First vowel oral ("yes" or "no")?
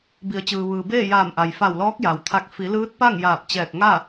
yes